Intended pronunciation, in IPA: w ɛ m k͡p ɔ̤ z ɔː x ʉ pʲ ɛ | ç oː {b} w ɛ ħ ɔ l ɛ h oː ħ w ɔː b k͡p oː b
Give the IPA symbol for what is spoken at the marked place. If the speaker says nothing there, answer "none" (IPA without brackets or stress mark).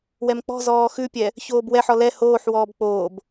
b